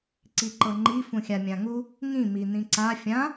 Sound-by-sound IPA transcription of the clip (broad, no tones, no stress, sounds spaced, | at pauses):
ǀ i ǃ ɤ ŋ͡ǃ i f ũ xʲ a mʲ ã ŋ u | ŋ ĩ m i n ĩ ǀ a fʲ ã